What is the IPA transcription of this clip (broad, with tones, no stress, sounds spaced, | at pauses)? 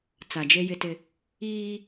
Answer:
t͡s a˨ d͡ʒ e˦ j ɪ˦ t ɪ˦ | iː˦